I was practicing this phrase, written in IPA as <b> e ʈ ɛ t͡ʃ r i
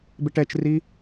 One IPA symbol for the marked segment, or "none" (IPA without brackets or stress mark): b